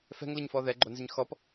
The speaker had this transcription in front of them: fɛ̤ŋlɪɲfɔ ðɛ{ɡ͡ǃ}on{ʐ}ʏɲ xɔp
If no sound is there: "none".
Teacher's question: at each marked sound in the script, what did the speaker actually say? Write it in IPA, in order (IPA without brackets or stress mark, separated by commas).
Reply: ɡ͡ǃ, z